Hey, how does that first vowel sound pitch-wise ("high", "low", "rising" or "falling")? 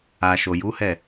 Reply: low